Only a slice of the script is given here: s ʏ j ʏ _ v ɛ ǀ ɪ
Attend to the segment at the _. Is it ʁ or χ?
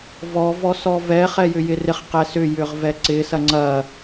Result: ʁ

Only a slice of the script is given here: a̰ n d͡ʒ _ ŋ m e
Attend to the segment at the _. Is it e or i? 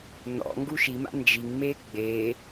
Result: i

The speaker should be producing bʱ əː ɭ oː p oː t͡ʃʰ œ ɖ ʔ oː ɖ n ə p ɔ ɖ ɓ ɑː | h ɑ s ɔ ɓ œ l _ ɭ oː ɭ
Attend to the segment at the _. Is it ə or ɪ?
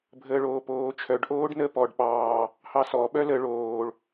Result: ə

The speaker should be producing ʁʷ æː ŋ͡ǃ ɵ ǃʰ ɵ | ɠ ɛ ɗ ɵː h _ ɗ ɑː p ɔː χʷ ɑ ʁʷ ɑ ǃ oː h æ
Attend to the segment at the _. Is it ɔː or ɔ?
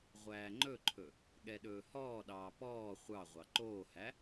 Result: ɔː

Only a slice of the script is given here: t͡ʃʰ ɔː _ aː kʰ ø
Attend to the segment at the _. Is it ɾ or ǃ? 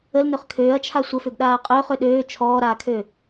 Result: ɾ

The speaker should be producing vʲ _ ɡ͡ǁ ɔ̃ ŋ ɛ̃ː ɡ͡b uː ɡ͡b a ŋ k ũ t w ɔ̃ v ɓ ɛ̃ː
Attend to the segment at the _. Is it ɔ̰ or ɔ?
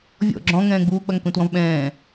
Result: ɔ̰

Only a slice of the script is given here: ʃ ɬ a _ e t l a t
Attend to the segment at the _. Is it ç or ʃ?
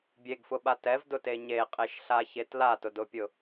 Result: ç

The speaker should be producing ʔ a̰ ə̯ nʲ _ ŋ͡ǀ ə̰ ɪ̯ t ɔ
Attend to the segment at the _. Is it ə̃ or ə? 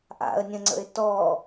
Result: ə̃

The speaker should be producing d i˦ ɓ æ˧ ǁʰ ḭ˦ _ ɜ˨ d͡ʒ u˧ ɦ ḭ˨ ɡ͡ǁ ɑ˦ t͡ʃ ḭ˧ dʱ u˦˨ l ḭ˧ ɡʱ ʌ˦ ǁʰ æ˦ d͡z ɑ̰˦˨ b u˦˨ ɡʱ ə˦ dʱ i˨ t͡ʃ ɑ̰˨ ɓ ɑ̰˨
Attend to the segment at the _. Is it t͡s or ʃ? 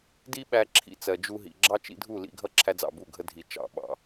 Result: t͡s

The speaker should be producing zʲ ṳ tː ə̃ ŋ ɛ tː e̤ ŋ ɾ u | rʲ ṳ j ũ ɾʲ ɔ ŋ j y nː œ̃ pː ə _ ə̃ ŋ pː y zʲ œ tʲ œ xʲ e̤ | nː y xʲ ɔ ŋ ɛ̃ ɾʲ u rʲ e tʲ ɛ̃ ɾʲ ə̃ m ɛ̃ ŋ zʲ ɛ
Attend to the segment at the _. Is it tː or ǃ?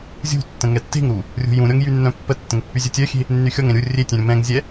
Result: tː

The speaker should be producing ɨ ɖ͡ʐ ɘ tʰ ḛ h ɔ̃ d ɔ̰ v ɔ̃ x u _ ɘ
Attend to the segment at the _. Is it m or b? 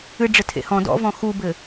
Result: b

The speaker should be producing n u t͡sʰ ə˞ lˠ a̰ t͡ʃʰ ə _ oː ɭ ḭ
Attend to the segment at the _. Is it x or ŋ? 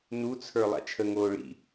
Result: ŋ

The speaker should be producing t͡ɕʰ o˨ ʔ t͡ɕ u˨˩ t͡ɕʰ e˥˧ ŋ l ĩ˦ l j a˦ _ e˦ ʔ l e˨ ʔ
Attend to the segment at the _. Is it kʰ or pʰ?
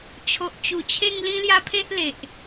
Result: pʰ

